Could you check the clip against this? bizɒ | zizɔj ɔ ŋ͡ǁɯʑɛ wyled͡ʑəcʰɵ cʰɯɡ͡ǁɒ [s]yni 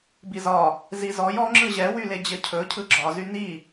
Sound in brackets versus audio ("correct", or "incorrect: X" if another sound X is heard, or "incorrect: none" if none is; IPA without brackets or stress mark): incorrect: z